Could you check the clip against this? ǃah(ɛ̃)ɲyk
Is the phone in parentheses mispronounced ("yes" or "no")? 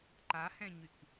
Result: no